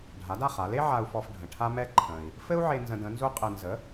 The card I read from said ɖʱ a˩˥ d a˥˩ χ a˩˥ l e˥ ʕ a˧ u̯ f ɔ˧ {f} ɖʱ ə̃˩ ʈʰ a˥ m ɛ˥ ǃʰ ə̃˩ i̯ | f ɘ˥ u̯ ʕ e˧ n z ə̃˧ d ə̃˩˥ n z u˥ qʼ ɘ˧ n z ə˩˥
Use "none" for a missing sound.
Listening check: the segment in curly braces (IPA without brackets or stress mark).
f